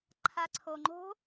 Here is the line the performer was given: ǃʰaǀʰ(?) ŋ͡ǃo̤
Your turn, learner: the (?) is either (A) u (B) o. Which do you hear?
B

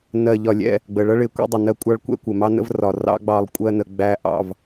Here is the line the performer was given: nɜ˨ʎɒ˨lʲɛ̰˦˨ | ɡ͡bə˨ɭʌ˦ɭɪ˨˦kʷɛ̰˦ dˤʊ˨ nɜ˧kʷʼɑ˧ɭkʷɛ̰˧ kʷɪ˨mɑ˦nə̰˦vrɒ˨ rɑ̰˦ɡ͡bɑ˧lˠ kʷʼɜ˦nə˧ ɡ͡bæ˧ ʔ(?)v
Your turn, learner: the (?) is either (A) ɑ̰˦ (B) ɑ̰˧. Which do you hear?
B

